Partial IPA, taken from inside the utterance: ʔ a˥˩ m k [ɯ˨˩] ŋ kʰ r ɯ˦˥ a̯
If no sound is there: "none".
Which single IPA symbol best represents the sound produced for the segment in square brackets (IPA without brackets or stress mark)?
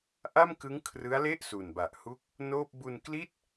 ɯ˦˥